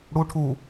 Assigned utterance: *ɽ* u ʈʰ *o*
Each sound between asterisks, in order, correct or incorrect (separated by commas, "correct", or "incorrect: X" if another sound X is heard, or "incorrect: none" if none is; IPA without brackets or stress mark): correct, incorrect: u